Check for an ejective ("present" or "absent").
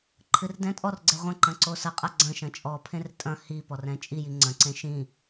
present